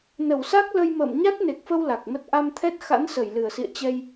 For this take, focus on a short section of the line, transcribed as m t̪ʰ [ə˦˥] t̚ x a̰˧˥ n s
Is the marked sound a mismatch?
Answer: yes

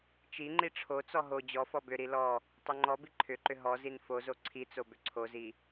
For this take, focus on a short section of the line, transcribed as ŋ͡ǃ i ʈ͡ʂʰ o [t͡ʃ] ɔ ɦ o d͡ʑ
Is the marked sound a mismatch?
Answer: yes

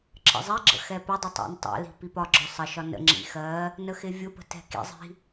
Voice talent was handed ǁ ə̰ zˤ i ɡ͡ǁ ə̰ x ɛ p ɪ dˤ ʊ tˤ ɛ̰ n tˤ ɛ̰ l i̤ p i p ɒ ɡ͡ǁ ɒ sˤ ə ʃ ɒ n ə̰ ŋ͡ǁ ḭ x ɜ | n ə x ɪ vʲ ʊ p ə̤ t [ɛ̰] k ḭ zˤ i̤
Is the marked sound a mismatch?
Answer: yes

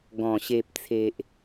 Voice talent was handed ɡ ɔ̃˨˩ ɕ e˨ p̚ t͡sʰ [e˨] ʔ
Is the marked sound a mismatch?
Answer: no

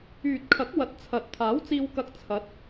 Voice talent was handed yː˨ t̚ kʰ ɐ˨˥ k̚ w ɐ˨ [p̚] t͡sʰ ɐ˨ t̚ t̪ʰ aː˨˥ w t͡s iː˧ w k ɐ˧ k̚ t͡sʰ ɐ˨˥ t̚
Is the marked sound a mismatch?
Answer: yes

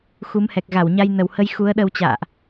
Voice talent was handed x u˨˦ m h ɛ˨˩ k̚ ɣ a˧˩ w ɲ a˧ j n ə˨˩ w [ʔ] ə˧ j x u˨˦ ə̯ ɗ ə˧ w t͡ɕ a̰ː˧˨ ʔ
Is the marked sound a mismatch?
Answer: yes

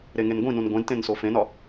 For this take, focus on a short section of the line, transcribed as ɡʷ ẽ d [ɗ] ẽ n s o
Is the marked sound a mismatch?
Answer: yes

